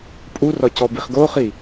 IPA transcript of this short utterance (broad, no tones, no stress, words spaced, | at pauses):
pʼurɒ cɔbiχɡoχi